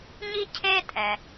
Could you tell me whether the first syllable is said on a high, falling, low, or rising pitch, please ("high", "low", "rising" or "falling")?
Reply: high